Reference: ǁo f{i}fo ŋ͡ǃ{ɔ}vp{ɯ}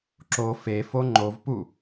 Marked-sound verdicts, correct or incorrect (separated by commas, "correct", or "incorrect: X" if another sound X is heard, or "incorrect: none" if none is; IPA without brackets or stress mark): incorrect: e, incorrect: o, incorrect: u